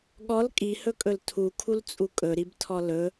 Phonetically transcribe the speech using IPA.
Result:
ɠ ɔ l kʼ i h ɵ kʼ ɵ l tʰ u kʰ u l t͡sʼ u kʼ ɵ ɾ i b tʰ ɔ l ɵ

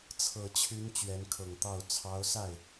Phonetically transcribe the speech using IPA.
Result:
t͡sʰ ɤ˨˩ t͡ɕʰ y˧˥ n t͡ɕ ɥ ɛ˧˥ n kʰ ɤ˨˩ ŋ t̪ ɑ˥˩ ʊ̯ t͡sʰ ɑ˧˥ ʊ̯ s a˥˩ ɪ̯

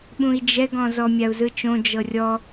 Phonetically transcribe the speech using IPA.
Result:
ɓ ũ i̯ d͡ʒ ɛ ɡ ɔ̃ z ɔ mʲ a u̯ z ɯ t͡ʃ õ d͡ʒ ɤ rʲ ɔ

